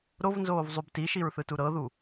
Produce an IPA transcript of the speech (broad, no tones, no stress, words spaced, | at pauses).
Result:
ɾovnzoːvzˤub tiʃiɹθɯtu ɾɤðu